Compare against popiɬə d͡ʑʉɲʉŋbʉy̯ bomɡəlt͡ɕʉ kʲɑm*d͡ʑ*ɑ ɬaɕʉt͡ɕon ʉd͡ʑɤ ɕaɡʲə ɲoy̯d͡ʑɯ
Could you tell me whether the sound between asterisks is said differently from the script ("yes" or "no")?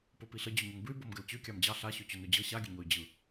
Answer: no